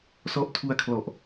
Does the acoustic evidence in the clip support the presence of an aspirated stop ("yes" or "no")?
yes